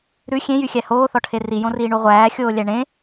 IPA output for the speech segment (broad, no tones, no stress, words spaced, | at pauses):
ɾʉ xʲẽjyxʲæ hoːθɔʈʰe rijõriːɳu ʁʷæːxʲoːlʲæ ɳẽ